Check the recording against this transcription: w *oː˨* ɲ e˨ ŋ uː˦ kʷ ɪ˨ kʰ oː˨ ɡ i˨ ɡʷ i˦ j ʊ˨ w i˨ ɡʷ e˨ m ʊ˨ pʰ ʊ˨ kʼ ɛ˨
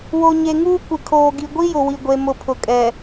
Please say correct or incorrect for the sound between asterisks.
incorrect